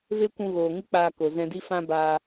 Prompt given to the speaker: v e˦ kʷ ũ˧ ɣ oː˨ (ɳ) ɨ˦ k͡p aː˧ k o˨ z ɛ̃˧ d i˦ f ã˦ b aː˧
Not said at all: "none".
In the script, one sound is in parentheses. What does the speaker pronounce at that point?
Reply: ŋ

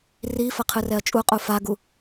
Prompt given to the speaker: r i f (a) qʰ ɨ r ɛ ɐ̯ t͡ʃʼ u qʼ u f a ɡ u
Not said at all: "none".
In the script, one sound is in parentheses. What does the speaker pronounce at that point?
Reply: ɐ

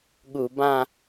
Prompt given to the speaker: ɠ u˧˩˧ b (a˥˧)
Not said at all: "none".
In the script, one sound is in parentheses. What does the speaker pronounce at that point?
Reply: ã˥˧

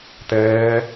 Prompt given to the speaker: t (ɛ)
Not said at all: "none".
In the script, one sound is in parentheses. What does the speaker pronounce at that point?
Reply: ɛː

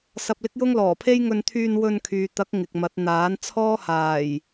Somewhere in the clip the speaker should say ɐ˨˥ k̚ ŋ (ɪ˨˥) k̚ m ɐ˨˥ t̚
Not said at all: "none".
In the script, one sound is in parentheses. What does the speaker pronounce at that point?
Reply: ɪ˨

